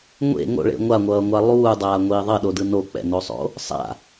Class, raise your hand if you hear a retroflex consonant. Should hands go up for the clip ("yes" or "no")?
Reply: yes